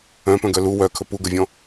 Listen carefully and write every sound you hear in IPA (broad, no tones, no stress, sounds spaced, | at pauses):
œ̃ p œ̃ ɡ œ l u w œ kʰ ɵ p u ɡ ə vʲ ɔ̃